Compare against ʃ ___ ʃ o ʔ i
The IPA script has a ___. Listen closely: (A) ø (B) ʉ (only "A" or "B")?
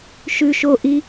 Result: B